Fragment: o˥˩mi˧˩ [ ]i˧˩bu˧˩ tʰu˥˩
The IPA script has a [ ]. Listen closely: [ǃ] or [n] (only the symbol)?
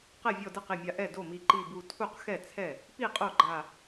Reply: ǃ